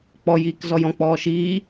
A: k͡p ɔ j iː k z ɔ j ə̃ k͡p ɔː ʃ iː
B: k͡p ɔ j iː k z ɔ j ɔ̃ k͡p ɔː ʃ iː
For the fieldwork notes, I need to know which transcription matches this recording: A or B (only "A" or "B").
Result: B